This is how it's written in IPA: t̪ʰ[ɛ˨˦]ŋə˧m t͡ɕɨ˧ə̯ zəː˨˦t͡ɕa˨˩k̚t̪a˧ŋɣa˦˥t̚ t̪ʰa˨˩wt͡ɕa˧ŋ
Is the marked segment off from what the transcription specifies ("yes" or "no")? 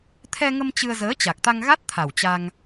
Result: yes